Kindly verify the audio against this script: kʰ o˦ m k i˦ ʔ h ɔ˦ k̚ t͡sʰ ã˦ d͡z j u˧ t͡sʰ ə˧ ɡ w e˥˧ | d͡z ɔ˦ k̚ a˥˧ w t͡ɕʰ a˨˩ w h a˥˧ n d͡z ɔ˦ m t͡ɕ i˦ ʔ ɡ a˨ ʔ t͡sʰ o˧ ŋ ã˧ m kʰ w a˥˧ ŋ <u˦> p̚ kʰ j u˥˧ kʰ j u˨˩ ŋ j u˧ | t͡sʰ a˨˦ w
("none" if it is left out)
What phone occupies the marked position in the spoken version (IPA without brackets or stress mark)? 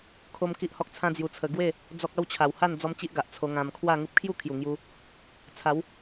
u˦